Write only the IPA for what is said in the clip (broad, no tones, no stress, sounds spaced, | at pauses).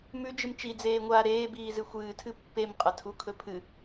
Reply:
m ʉ d͡ʒ ɨ m t͡ʃ i d͡z eː ŋʷ aː ɾ eː b iː z ɨ xʷ ɨː tʰ ɨ pː e m qʼ ɐ tʰ u kʰ ɵ pʰ ɨ